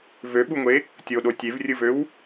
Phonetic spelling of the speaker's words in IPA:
v ø ɓ u ŋʷ e | tʲ o ɗ o tʲ e v rʲ ɯ v ø w

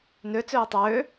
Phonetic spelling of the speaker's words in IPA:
n ø t͡s øː tˤ øː

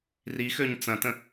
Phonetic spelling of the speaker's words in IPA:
r i x ø ɲ t͡s ɐ̃ t ə̃

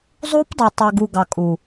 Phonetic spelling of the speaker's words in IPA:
zˤ u˦ p dˤ u˨ tˤ œ˨ ɡ u˨ ɡ ɑ˨ kʼ u˨

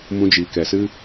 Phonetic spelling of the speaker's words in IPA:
m ũ˧ d͡ʒ iː˨ k ɛ˨ s ɨ˦

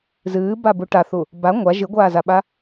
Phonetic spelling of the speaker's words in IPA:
z ɨː b a b u ʈ a θ u | b a ŋʷ a ʒ ɨ ɡʷ aː z a ɓ a

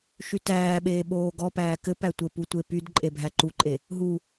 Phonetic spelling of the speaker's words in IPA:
ʃ y t æː ɓ eː ɓ oː ɡ ɔ p æː k ɘ p æ tʷ ɘ p u tʷ e p y d ǃʼ e bʱ æ ǃ u ǃʼ e | ɦ u

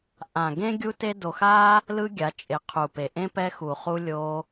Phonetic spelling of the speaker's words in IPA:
ʔ ã˨ ɡ ẽ˦ ɡʲ u˦ t e˦ d o˧ x a˦ | l ɯ˦ ɡʲ a˨˦ t͡ʃʼ e˨˦ qʰ u˨ p e˨ ʔ ẽ˦ p ɛ˧ x u˨ χ u˧ lʲ o˧

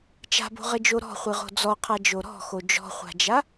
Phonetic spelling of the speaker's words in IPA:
t͡ʃ a̤ b o̤ ʁ ɘ d͡ʒ o ɾ ɔ̤ χʷ ɨ ʁ o̤ d͡z ɔ qʰ a d͡ʒ o ɾ ɔ̤ x o d͡ʒ ɔ̤ χʷ a̤ d͡ʒ a

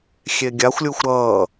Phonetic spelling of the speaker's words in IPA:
xʲ e ɡʲ a xʷ lʲ u xʷ ɾ ʌː

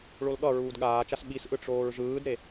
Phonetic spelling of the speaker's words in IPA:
ɭ o l ɠ ʌ ɹ uː d ɠ aː t͡ʃ a s ɓ i s ʔ ɯ ʈ͡ʂ oː ɹ ʒ ɯː d ɾ e

